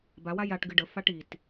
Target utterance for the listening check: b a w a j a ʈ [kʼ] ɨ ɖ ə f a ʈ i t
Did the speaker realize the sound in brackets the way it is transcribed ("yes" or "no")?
no